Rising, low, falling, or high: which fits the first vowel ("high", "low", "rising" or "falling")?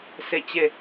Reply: falling